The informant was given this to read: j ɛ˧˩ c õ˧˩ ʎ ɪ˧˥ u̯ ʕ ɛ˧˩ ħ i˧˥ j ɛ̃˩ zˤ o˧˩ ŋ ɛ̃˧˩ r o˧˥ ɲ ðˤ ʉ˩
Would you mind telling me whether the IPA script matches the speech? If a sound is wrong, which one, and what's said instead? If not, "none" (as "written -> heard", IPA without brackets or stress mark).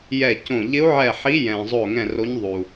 ʉ˩ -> u˩